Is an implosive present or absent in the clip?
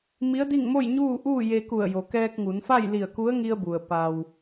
absent